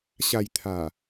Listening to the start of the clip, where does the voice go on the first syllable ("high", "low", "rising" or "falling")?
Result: low